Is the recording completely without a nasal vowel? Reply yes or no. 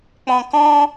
no